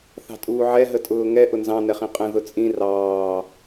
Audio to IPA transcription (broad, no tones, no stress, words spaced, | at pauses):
θɑ̤tʼuːʕɛ ɦətʼʊːŋɛ ʔʊnzɑ̃ nɛχĩqʼə̃ ðʊt͡sʼĩ rɑː